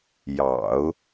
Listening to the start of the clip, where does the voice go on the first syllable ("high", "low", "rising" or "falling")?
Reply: low